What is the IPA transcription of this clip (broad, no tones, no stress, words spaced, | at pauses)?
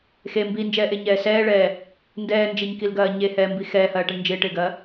xe mbind͡ʒɛːʔeɲɛː sɛːɭɛː | ndɛːnd͡ʒeɲkilɡɐː ɲehɛːmbi xɛːhɐːʈɛɳ nd͡ʒɪːʈɪːɡɐː